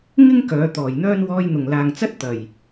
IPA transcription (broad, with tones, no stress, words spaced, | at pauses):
ŋɪ˥ŋ kœː˨˧t̪ɔː˨˩jn̪œː˥n wɔː˧jn̪ʊ˨˩ŋlaː˨ŋt͡sɐ˥t̚ t̪ɐ˨˩j